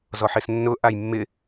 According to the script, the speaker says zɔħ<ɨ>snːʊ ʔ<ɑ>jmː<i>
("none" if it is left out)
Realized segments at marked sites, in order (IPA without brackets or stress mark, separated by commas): ɪ, a, ɪ